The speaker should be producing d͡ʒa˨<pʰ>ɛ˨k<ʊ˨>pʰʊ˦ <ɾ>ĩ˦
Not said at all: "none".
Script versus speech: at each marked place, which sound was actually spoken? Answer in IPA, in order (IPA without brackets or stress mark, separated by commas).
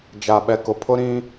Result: ɓ, ʊ˨, ɾ